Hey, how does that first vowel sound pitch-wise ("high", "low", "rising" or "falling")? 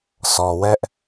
low